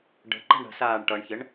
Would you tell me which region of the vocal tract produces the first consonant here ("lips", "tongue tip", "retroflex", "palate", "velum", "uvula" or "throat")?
retroflex